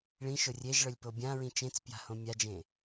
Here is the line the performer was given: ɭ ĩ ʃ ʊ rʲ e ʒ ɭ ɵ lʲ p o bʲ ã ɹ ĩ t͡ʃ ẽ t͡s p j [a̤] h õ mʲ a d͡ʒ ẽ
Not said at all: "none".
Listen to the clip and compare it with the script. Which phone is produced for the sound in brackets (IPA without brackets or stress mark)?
a̤